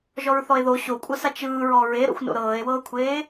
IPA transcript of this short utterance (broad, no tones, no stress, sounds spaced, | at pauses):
ʒ ɔ ɹ θ ɔ e̯ ð o ɕ o kʷʼ ɤ s a t͡ʃ ɯː ɹ ɔ ɹ e ɾ o̰ xʷ n o̰ ɾ ɤː e̯ w ɤː kʷʰ eː